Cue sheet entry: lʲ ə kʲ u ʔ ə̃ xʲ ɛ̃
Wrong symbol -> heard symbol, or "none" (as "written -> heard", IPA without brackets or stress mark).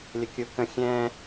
ʔ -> k